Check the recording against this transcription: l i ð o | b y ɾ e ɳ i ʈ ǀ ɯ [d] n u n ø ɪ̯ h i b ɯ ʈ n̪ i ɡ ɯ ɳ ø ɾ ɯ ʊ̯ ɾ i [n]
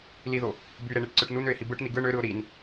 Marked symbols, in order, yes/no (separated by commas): no, yes